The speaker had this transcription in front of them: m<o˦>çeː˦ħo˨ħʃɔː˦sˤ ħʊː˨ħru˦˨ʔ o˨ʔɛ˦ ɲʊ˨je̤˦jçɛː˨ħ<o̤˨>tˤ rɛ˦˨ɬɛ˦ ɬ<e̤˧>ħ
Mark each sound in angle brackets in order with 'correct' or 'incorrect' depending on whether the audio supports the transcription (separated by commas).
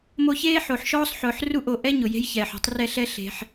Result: incorrect, incorrect, correct